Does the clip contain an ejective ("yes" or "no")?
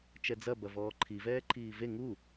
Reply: no